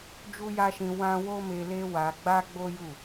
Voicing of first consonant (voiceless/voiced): voiced